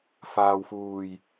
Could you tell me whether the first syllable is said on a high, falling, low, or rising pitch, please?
low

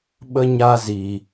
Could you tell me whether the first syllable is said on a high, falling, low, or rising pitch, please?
high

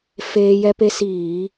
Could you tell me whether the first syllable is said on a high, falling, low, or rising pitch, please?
high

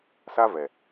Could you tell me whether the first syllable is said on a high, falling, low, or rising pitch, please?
high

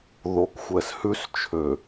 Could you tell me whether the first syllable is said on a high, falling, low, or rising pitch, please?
low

